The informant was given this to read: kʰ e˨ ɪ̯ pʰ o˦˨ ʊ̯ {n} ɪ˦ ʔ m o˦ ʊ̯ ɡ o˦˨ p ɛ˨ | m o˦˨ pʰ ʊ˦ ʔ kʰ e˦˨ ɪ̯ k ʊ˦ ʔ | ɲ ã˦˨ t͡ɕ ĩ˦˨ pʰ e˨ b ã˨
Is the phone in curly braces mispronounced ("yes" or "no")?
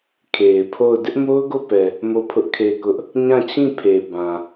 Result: yes